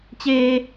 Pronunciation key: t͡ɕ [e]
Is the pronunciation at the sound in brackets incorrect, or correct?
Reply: incorrect